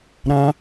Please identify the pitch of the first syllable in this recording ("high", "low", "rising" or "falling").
high